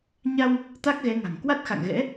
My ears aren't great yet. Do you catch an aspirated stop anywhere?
no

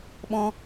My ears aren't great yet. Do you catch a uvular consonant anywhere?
no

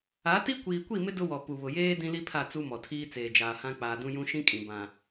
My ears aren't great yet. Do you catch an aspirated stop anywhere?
yes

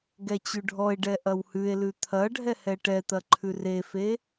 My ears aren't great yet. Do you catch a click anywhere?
yes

